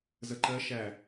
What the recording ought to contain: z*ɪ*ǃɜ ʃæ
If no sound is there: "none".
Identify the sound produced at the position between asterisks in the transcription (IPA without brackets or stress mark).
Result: ə